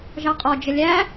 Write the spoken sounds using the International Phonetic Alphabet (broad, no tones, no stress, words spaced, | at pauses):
ʒɑqʼɔ d͡ʒəlʲæ